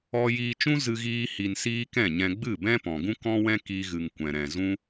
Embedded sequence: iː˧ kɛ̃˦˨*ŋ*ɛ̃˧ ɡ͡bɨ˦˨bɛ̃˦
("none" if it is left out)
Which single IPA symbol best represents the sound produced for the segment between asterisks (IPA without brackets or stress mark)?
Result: ɲ